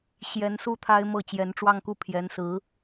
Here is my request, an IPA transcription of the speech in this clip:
ɕ j ɛ˧˥ n s u˥˩ t̪ʰ a˥ ɪ̯ m ɤ˥˩ t͡ɕ j ɛ˧˥ n ʈ͡ʂ w ɑ˥˧ ŋ k u˥˩ pʰ j ɛ˧˥ n s ɹ̩˧˥

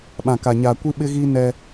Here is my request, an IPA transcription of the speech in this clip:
ɓ ã˨ k a˨ ɲ aː˨ kʷ i˦ ɓ ɪ˦ ɣ iː˦ n ɛ˦

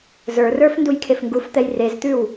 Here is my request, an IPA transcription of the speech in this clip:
z ə˞ r ə˞ f n d u j kʰ e f ŋ ɡ u f t̪ ɛ j r e z t̪ ʉ w

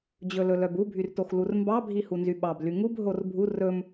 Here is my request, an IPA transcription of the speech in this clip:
d͡ʑ ɵ l ɵ l œ b u bʱ y r t o x l u r m b ɑ bʱ i h u n z y ɓ ɑ b l y ŋ u b ɦ o r bʱ u r ɵ m

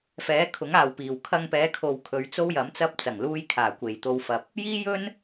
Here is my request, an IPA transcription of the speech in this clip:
f ɛː˨˥ kʰ ʊ˨˥ ŋ aː˨ w p iː˨˩ w kʰ ɐ˧ ŋ p ɛː˨˧ kʰ o˨ w kʰ ɵ˨˧ ɥ t͡s o˥ w j ɐ˨˥ m t͡s ɐ˥ p̚ t͡s ɐ˨˩ ŋ l uː˧ j kʰ aː˨˩ kʷ e˨˩ j t̪ o˧ w f ɐ˨ p̚ | j iː˥ j ɵ˥ n

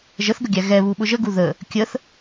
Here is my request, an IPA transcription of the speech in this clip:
ʒ ə θ ɡ ə ɡʲ æ ɣ ɛ β u ɓ ʊ ʒ ə ɡ u ð ə | kʲ ə θ

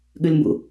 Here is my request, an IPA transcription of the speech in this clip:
ɠ ʉ l m b ṵ

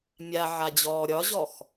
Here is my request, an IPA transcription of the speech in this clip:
mʲ a ʕ a d͡ʑ ɔː ɾʲ ɒ ʑ ɔ x

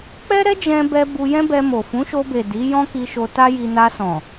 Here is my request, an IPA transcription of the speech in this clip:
k͡p ɛ˦ ɾ ɛ˦ d͡ʒ ɛ̃˧ b ɛ˧ b u˧ j ɛ̃˦ b ɛ˧ m o˨ f ũ˨˦ ʃ o˧ b e˨ d i˨˦ j ɔ̃˦ k i˧ ʃ o˧ t a˦ j i˧ n a˧ s ɔ̃˨

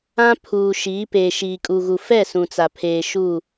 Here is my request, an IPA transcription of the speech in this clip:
ã˦ pʰ uː˨ ʃ iː˨˦ p eː˨ ʃ iː˨ kʼ u˨ ɣ u˨ f ɛ˦˨ s ũ˨ t͡s a˨ pʰ eː˨ ʃ u˦˨

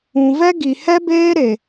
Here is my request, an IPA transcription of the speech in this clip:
ũ˨ v ɛ˦ ɡ i˨ h ɛ˦ b eː˦ ɾ e˨

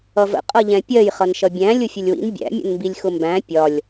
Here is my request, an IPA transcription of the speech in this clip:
ʌ v ə̰ qʼ ʌ ʎ ɛ̃ pʲ ɜ j χ ʌ n ʃ ʌ bʲ æ̃ lʲ ʊ fʲ ə lʲ w ḭ n bʲ æ̰ mʲ ə̰ n m b i lʲ x ʊ m b æ̃ pʲ ɒ lʲ

